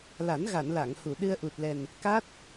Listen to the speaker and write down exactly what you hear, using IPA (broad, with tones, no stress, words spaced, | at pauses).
la˨˩˦nɣa˨˩˨n la˨˩˨ŋhu˨˩˨ ɗɨ˧ə̯ʔu˨˩t̚lɛ˨˩n | ka˦˥t̚